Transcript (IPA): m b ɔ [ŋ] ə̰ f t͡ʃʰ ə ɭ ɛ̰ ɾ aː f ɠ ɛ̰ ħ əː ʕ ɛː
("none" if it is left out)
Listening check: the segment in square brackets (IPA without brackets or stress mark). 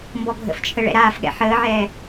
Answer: ɡʱ